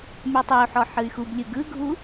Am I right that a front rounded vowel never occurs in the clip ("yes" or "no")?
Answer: no